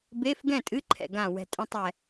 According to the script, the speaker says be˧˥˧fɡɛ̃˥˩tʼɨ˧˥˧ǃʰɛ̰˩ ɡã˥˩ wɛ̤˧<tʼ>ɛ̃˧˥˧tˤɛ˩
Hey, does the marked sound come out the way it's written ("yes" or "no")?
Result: yes